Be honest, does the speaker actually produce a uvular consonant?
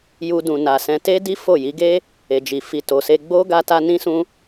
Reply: no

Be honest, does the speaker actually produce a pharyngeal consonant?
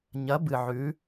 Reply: yes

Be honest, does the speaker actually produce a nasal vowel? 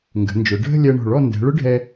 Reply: no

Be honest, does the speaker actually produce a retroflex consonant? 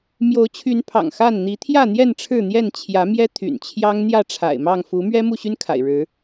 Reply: yes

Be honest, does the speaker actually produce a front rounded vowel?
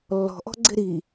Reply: no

